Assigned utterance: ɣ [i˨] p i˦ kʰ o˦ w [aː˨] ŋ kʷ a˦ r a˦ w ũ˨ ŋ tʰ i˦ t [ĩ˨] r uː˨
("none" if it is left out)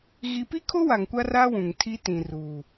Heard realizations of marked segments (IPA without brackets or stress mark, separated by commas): i˨, a˨, ĩ˨